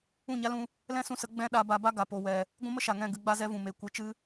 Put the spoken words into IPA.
ũ˦˨ɲa˦lũ˧ | lɛ̃˦sũ˧sə˨˦ ɡ͡bɛ̃˦ ɗa˧ba˧ba˦ ɡa˨po˦wɛ˧ | ɡʷũ˦mə˦ʃa˨ŋɛ̃˦˨ ɡɨ˧ɡ͡ba˦zɛ˦vũ˨ me˧ kʷɨ˧ t͡ʃɨ˦

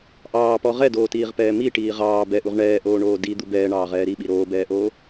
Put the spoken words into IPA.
ʔɑːpɔ ʁɛdoːtiːʁpɛː miʈiː ʁɑː bɛʔuʁ ɳɛːʔoːɳoː did̪ub ɛːɳɑːʁɛː ɾiɓi ɾoːbɛːʔoː

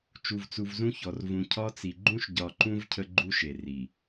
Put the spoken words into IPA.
t͡ʃu˨vt͡su˨vzũ˦çɔ˨r vũ˨cʰɒ˦t͡si˨ ɡ͡ǃũ˦ʃɟɒ˨ǃũ˦v cʰə˦ɡ͡ǃu˦ʃe˨ ri˨

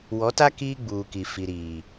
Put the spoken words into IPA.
wɔ˨˦ta˦ kiː˦ɡ͡buː˨ki˨ fi˨ɾiː˨

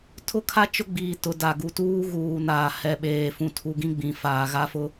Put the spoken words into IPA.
tʰʊ˦kʰa˦ t͡ʃʊ˦ɡ͡biː˨tʊ˨ da˨ɡu˨ tuː˦ɣuː˨naː˨hɛ˨ ɓeː˨ fũ˨tʰu˨ ɡĩ˦ɡ͡bĩ˨ faː˨ɣa˦fʊ˦

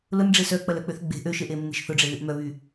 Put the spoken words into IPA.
lʊnɖ͡ʐe sœk͡pɐlœk͡pøθ ɡ͡be̤ ʔøʃeʔemːe̤ʃ θʊɖ͡ʐeðyʔ mœβy

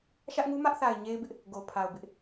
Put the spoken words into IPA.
ʃä˦ʔŋu˦mä˦ʔθa˨ɪ̯ ɲe˦ɪ̯bɪ˦ʔ | ɡo˨pʰa˨ʊ̯ bɪ˦ʔ

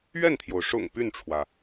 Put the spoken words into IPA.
ɥɛ˥˩nt̪ʰjo˩ʊ̯ ʂʊ̰˨˩ŋ py˥˩nʈ͡ʂʰwä˩

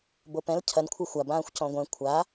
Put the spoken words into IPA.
bopɛ̃l cʰɐnkʷʰɨ xʷabãːxʷ cɔ̃ɡʷɛ̃ kʷʰa

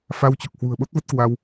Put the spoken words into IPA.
fa˧wt͡ɕɔ˨˩k̚hwṳ˨˩ə̯ ɓo˦˥t̚və˦˥t̚ kwa˧w

